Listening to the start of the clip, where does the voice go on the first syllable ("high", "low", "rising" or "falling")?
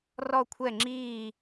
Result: falling